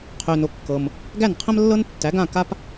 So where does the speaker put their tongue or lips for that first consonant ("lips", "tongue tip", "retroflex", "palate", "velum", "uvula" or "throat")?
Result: uvula